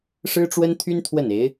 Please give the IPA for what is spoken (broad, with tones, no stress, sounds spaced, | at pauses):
ʂ ɻ̩˥ ʈ͡ʂ w ə˥ n t̪ʰ y˥ n t̪ʰ w ə˥˩ n e˧˥ ɪ̯